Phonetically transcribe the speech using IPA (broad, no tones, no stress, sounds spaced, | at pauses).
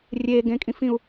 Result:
rʲ e ɡ ẽ kʼ ĩ f ĩ u̯